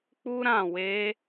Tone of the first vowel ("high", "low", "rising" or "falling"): high